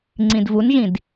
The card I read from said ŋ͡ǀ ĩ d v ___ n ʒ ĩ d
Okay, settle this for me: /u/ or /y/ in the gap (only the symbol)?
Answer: u